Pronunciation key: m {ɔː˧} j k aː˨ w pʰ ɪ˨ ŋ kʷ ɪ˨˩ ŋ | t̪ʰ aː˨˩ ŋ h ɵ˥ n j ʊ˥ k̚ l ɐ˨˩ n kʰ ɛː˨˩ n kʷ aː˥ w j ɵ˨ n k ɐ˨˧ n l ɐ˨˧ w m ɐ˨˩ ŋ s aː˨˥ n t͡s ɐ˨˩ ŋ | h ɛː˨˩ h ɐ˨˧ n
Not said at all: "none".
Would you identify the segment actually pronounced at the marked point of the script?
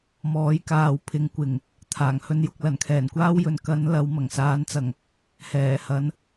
ɔː˨˥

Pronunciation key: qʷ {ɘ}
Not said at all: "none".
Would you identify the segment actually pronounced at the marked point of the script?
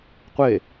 e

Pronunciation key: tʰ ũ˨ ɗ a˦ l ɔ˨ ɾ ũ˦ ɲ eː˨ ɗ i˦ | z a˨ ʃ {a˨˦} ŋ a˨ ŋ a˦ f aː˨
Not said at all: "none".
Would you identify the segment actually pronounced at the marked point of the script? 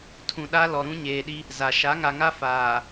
a˨˦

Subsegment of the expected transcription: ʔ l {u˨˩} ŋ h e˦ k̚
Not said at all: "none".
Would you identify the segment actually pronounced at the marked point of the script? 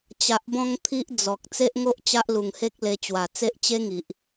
u˨˩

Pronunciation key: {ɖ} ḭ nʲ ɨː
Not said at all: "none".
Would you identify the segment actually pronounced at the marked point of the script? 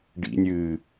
ɖ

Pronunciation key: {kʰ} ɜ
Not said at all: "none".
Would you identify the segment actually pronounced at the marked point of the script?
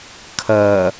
kʰ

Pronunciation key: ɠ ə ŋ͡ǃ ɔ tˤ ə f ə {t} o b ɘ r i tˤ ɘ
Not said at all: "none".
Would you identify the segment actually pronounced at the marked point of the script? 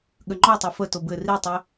t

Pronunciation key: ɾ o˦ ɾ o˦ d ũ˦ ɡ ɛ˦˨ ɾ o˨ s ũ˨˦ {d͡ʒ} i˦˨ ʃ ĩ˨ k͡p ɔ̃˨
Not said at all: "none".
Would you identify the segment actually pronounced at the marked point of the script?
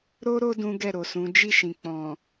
d͡ʒ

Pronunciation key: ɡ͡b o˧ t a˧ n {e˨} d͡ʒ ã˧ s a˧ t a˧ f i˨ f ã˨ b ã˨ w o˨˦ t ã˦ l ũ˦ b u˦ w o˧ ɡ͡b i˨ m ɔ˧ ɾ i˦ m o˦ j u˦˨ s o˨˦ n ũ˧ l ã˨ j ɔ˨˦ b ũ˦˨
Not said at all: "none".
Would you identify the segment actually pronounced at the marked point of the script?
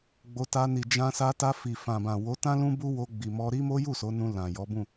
i˨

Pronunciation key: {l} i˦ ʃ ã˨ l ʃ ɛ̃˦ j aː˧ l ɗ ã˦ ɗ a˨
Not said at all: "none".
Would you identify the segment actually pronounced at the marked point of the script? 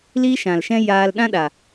l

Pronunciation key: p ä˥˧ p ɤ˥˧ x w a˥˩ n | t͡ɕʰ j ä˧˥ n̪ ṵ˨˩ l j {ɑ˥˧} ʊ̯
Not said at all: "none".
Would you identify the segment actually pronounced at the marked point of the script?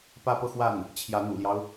ɑ˦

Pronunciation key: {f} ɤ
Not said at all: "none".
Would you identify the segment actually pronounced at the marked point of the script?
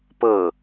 p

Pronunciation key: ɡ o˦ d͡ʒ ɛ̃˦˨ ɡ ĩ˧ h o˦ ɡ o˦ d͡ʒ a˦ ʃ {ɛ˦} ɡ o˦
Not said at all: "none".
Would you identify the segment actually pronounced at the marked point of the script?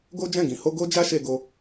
e˦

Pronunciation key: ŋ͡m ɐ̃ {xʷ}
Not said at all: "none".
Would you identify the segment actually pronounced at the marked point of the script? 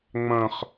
χ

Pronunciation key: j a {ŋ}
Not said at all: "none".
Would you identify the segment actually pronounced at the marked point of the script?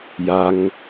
ŋ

